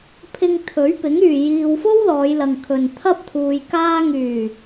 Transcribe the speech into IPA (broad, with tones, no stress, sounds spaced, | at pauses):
pʰ ɪ˧ ŋ t̪ʰ ɵ˨˥ ɥ p ɪ˨˥ ŋ yː˨ j iː˧ w f o˥ w l ɔː˨˧ j l ɐ˨ ŋ kʰ ɵ˨ n t̪ʰ ɐ˥ p̚ t̪ʰ uː˧ j k aː˧ ŋ yː˨˩